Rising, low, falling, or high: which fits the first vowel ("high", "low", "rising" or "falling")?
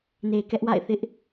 low